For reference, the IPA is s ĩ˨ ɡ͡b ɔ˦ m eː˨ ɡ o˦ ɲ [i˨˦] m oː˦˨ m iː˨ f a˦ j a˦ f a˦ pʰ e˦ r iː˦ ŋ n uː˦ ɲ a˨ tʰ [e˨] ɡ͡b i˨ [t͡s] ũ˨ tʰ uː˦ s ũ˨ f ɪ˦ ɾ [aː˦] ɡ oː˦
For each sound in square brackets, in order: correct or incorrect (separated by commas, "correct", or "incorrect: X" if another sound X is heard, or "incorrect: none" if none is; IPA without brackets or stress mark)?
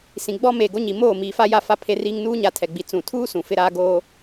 incorrect: i˨, incorrect: ɛ˨, correct, correct